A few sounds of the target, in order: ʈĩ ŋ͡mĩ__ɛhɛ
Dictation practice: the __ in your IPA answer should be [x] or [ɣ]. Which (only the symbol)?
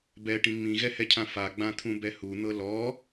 ɣ